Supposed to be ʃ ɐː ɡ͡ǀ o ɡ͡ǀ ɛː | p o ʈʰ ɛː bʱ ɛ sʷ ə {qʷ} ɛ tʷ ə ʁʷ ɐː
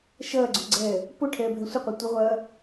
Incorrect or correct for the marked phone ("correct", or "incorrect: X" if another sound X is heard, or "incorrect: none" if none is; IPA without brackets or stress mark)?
correct